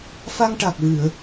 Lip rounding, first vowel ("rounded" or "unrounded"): unrounded